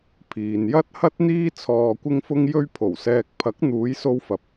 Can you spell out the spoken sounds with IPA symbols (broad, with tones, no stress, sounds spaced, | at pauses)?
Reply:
pʰ iː˨ n j ɐ˥ t̚ h ɐ˥ t̚ n̪ iː˥ t͡sʰ ɔː˧ kʷ ɪ˥ ŋ f ʊ˥ ŋ j ɵ˥ ɥ pʰ o˨˩ w s ɛː˧ k̚ pʰ ɐ˨˥ k̚ n̪ uː˨˧ j s o˧ w f ɐ˨ p̚